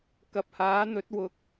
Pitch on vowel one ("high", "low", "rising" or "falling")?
rising